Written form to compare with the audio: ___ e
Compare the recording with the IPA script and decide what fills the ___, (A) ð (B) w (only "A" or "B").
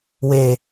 B